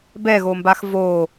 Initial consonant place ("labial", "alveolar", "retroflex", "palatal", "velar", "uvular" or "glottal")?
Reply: labial